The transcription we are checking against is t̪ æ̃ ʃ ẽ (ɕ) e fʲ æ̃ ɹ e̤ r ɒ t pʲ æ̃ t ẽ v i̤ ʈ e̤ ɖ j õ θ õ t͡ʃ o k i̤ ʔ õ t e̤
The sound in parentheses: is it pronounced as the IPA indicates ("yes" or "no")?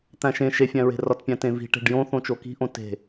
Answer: no